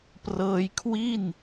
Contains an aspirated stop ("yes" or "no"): yes